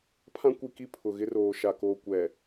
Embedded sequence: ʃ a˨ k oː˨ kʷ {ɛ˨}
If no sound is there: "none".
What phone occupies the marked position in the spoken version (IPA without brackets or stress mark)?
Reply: ɛ˨